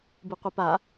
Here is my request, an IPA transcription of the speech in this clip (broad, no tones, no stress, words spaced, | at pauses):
bɨqʷɨpa